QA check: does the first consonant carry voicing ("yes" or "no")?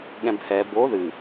yes